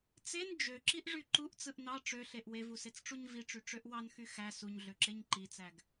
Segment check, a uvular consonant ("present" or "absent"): absent